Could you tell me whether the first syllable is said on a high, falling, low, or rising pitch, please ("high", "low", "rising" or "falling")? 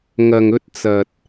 low